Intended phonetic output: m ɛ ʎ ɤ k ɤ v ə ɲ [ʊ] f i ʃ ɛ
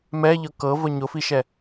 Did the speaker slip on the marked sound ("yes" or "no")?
no